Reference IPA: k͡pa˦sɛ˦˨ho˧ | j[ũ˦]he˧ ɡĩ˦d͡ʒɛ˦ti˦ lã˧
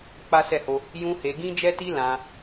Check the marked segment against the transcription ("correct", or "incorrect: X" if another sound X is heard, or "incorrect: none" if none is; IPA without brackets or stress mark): correct